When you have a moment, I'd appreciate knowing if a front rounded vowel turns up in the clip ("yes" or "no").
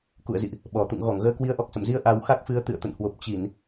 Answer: no